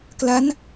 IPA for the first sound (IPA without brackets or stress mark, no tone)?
k